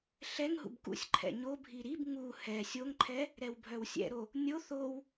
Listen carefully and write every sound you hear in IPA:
ɬɛŋ ɦṵbkṵsʲǃʰɛ̰ ɲobʱi ɾib ŋu hɛ sʲoŋǃʰɛ | ɾɛwbʱœwsʲɛ̰ɾo | nʲo θow

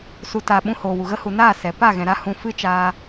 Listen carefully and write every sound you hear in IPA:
su˨ta˨ ɓũ˧hoː˨wu˨ɣə˦ hu˨naː˦˨ sɛ˨ pa˦˨ɣɛ̃˨ɾa˧ hũ˧ fɨ˦t͡ʃaː˧

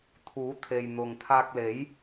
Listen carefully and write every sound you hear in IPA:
t̪ʰuː˨˥t̪ʰe˨jn̪ʊ˨ŋt̪ʰaː˧k̚ le˨˥j

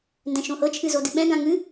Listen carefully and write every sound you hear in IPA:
ndɛ̃ʃõhɤ t͡ʃʰɨzodɨɓɛ̃ ɡãŋɨ

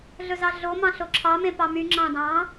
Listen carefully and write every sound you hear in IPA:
ɮɵzɑɮomɑ̃ ɬoǁʰɑmẽ pɑmy ŋ͡ǁɑ̃dɑ̃

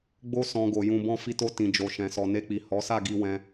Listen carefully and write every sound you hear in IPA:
ɡ͡bo˦ sɔ̃˦ɡo˧ jũ˧bɔ̃˦ fi˧to˧ tĩ˨d͡ʒo˨ ʃɛ̃˨sɔ˨ne˧k͡pi˨ hɔ˨˦sa˦˨ ɡi˧ wɛ̃˧

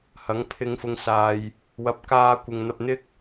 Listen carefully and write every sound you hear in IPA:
hɐ˨˥ŋpʰɪ˧ŋfʊ˧ŋ saː˧j | wɐ˨˥p̚kaː˧kʷɪ˨ŋn̪ɐ˧p̚ n̪ɪ˥k̚

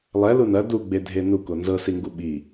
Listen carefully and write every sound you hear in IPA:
lˠɛlu nɐ duɡ͡bedʱe nuko nzɤsiŋɡu ɓi

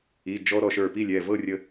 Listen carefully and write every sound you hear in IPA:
i˩˧˩d͡ʒɔ˧ ɾɔ˧˩ʃə˞˧˩pi˥˨lʲɛ˩˧˩ vɤ˥˨rʲə˧

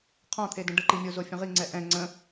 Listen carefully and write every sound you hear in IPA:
qʰɔ̃t̪ʰedə̃ ɖəǃimʲozo fʲə̃ʁiŋ͡ǀɛ ʔɛ̃ ŋ͡ǀə̃

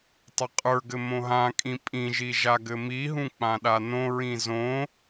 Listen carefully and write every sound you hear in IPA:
tˤɘqʼə˞ɡɘ mõɦãkʼĩ pʼĩʒi ʒaɡɘmiɦũ k͡pãɗanõɹĩ zõ

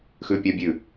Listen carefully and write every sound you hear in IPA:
xʉpʲabʲʉ

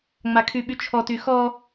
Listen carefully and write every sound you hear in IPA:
ŋ͡makʰyɓyt͡ʃʰɔ tyxɔ

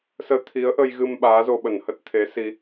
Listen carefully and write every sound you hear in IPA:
səː˧t̪ʰi˨˦ə̯ʔə˧jɣɨ˧m ɓaː˨˦zo˧ɓə˧˩n hə˦˥t̚ t̪ʰe˨˦si˧

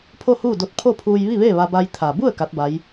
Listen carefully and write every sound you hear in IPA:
pʰo˥˨huː˥˨do˧˥t̚ pʰo˥˨pʰuː˧j ʋi˥˨ʋeː˥˨ ʋa˧ba˧j t̪ʰa˩bu˥˨ə̯ ka˧˥t̚ba˧˥j

